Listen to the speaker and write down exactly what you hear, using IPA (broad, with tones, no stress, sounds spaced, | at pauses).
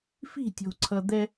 f i̤˥˨ tʲ o̤˨ ǀʰ ʌ˨ d̪ ɛ˦